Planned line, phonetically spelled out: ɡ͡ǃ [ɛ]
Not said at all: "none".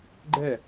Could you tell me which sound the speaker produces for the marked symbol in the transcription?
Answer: ɛ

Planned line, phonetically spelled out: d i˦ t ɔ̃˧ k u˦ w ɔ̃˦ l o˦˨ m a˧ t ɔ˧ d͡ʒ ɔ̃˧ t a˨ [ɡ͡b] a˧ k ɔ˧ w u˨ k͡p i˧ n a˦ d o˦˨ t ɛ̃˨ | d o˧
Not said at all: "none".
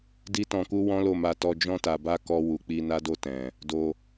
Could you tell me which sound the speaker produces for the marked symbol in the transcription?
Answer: b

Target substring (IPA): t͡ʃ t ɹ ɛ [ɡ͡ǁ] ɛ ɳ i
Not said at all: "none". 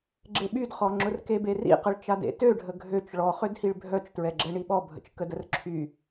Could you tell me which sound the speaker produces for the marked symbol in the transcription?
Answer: ɡ͡ǁ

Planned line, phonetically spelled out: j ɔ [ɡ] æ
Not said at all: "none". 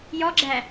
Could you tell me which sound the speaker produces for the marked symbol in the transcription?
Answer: ɡ͡ǁ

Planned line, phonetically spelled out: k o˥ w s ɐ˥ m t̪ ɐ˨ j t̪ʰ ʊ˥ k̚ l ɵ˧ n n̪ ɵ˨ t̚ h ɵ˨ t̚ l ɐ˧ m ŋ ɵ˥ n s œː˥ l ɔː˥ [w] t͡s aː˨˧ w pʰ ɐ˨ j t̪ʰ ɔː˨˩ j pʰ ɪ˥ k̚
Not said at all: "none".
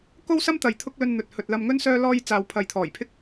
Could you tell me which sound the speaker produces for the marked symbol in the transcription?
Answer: j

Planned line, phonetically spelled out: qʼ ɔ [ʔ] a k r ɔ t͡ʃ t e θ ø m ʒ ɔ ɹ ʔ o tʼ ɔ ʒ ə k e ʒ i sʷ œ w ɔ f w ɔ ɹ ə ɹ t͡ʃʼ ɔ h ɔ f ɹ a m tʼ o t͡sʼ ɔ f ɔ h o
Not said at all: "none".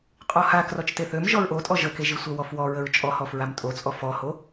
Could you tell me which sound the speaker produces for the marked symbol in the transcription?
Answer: h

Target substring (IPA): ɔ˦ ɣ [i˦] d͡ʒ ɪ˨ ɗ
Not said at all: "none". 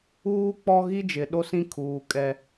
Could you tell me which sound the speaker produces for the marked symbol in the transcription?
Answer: i˦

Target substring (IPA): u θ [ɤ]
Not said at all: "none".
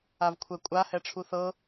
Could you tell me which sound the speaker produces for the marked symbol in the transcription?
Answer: ɤ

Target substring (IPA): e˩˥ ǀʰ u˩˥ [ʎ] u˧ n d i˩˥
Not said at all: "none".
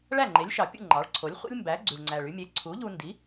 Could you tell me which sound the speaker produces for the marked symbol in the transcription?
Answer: ʎ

